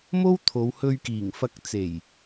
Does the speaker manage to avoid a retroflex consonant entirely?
yes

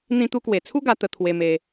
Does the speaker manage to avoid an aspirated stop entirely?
no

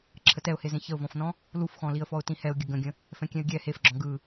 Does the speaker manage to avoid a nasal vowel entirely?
no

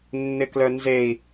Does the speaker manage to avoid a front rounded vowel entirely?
no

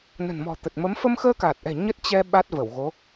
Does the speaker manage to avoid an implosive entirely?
no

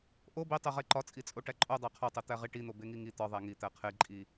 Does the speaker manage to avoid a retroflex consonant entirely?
no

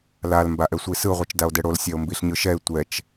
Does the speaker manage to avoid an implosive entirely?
yes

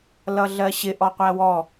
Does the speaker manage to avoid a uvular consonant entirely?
no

